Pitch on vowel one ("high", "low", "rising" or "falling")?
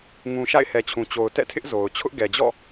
low